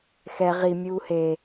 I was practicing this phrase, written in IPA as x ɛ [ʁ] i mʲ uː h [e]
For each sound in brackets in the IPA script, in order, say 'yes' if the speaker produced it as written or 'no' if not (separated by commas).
yes, yes